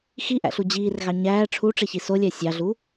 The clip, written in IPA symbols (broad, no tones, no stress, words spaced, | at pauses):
xiʔæ̰ɬu d͡ʑiːrɣɑ ɲæː ʈ͡ʂʰuʈ͡ʂeçi solʲæ sʲɑɮu